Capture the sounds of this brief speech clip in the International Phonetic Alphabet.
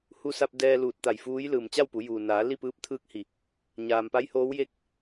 hu˧sa˧p̚ dɛː˧luː˧˩t̚t̪a˧˩j fuː˧˥j lɯː˩mt͡ɕa˥˨wpu˩˧ juː˩naː˩˧ li˥˨pɯː˧˥p̚t̪ʰɯː˧˥k̚hi˩ | ɲaː˩mpa˧˥jhoː˧˥wje˥˨k̚

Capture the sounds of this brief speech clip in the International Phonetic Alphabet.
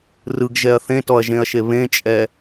rɯɡʒɛɐ̯ θẽtɔɐ̯ʒẽɐ̯ʃe βẽt͡ʃʼɛ

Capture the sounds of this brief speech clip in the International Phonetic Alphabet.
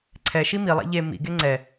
ǀʰɛʃi milˠa̰ ʎe mḭɡe ŋ͡ǀɛ

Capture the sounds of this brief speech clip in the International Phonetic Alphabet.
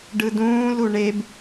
ɖɯdũːlu ɳeb

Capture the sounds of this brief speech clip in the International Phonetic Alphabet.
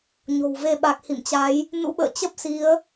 ɲo̤˨˩wve˧ ɓa˨˩k̚hḭ˧˨mt͡ɕa˨˦j | nṵ˧˥ɓə̰ː˧˨ t͡ɕə˦˥p̚si˨˦ə̯

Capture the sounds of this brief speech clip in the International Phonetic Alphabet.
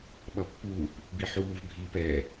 ɓʌpːuːp | biħuːv bʱiːpɛ

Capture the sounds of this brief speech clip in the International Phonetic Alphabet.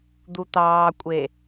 d̪ut̪ɑːkʷʼe

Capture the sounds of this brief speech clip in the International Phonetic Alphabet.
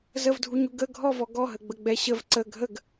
zəvdʱuɲu ɡə ɡʱɔvɔ ɡɔɦəɡ͡bəɡ͡bɛ ɕəv ǀə ɡʱəɡ

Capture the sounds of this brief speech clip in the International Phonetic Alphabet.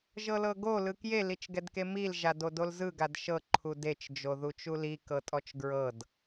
ʒɤlɤɡo lɯkje lit͡ʃɡɛdkemil ʒadodolzɯ ɡadʃɤ ǃʰudet͡ʃ d͡ʒoðut͡ʃuli kɤtʼɔt͡ʃɡɹɤd

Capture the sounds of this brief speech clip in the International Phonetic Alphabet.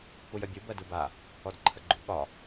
pujœbʲu bɜduba | ɔdǃʰəɡ͡ǃṵ ɠɒ

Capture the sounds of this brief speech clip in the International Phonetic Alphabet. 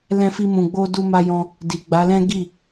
lɛ̃˦fi˦mũ˧ɡ͡bo˦ du˧ma˧jɔ̃˧ | di˨ɡ͡ba˨˦lɛ̃˦ ɡi˦˨

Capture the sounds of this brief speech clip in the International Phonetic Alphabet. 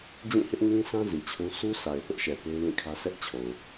d͡ʑĩ˦˨hɪ˦ʔŋĩ˦sã˦ zi˨t͡ɕʰũ˦ sʰu˦ sa˨ɪ̯θʊ˦ʔʃɛ˨ pe˦ɪ̯lĩ˦˨kʰä˦ sʰɛ˦ʔt͡ɕʰo˨ʊ̯

